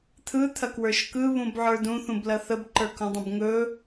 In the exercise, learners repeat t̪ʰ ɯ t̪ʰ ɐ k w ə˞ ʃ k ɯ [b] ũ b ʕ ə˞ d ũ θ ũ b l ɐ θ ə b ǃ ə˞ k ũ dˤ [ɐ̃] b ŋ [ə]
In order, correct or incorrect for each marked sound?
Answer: incorrect: β, incorrect: ə̃, incorrect: ɵ

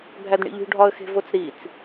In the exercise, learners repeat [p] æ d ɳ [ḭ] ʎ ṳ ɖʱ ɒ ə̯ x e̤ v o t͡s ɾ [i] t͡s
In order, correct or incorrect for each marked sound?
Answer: incorrect: bʱ, correct, correct

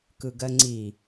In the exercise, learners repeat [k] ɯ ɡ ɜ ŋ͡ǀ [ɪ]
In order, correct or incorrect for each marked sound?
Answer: correct, incorrect: i

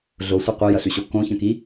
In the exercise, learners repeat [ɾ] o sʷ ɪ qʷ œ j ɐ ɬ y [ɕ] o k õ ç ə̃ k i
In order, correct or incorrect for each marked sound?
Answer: incorrect: ɮ, correct

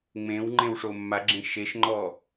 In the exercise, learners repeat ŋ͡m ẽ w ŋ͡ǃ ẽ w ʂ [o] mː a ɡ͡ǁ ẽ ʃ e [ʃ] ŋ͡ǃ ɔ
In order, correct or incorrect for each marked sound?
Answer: correct, correct

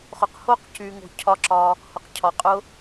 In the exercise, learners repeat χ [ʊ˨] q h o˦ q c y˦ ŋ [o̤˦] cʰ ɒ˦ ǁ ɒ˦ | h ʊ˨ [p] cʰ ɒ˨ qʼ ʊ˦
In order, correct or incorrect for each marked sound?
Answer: correct, correct, incorrect: q

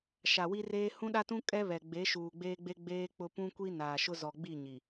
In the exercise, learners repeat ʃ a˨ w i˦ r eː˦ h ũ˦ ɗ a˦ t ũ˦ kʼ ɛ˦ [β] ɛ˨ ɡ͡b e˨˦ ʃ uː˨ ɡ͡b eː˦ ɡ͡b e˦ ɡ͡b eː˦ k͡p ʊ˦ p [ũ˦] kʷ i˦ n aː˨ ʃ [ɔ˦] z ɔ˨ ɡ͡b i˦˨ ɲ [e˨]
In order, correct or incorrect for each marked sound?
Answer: correct, correct, incorrect: ʊ˦, incorrect: i˨

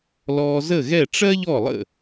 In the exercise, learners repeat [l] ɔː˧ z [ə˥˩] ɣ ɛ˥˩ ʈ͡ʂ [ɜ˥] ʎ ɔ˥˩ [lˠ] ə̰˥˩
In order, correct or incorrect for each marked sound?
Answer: correct, correct, correct, correct

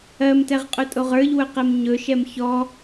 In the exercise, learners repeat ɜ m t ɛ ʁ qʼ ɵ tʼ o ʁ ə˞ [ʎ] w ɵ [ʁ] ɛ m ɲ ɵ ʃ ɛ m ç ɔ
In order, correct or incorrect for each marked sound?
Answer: correct, incorrect: q

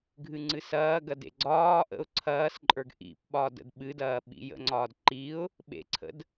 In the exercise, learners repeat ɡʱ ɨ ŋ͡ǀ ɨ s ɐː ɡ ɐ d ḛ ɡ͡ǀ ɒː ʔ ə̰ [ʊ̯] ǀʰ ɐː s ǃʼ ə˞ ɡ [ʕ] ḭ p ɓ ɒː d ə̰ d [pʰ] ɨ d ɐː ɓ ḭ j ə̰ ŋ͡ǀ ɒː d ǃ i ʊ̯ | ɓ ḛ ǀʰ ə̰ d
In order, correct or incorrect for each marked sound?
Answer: correct, incorrect: ʔ, incorrect: ɓ

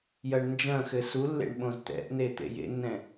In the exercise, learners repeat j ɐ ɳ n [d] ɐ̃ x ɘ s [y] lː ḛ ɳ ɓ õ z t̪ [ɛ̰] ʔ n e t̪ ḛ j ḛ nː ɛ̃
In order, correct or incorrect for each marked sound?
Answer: incorrect: d͡ʒ, incorrect: u, correct

